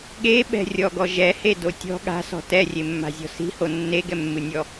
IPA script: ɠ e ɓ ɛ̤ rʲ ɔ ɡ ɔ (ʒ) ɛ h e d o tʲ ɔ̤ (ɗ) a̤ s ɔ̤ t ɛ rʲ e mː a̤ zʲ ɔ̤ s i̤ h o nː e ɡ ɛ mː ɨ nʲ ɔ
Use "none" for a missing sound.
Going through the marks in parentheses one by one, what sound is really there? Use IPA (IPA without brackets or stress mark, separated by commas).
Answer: ʒ, ɠ